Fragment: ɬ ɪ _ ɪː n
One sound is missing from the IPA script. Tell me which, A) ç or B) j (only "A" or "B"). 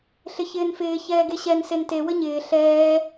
A